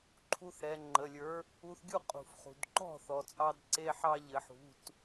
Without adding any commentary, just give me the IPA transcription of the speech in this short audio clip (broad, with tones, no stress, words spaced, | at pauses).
ǃʰu˧θ ɾɛ˩˧ŋ͡ǃə˩˧˩lʲə˞˨˥ | u˧θɡʲu˥˩qʼṳ˩f χṳ˩dǃɔ̤˥˩ θɔ˩t͡sʼɑ˧dǀe˧ ħɑ˧ʎɘ˩˧ħṳ˩˧˩t